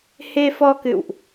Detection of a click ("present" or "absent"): absent